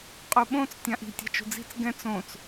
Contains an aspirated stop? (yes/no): no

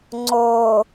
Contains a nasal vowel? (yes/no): no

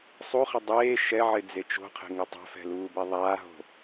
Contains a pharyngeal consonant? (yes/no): yes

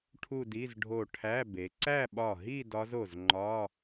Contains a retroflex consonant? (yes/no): yes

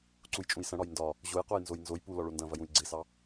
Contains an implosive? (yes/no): no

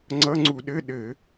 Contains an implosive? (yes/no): yes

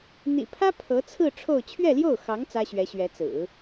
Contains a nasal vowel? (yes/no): no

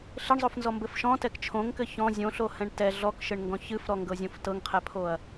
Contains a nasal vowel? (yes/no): yes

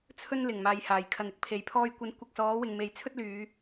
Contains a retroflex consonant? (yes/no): no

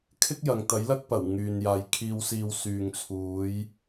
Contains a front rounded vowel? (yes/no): yes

